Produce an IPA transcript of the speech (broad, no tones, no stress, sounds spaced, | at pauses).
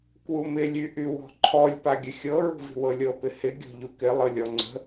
k w u m ɪ lʲ y ʔ y w ɔ̤ ǃʰ ɔ lʲ p a ɡʲ ə xʲ ɤ ɹ ṳ v i̤ w ɤ lʲ ɤ p ɪ h ɪ ɡʲ ɔ̤ ʎ u k ɪ lˠ ɤ lʲ ɔ ŋ͡ǀ ə̤